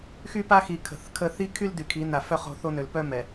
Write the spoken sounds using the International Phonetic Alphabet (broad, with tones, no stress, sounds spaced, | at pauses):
x y˦ p a˦ x i˨ kʰ ə̤˨ θ kʰ ə˦ θ i˦ kʰ y˦ l d y˨ kʰ i˨˦ n a˨ f œ˦ χ o̤˦ θ o˦ n ø˨ l p œ˦ m ɛ˨